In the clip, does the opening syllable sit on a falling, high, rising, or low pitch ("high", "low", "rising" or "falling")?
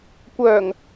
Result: low